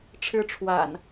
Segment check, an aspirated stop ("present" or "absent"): present